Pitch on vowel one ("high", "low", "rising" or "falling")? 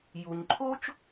low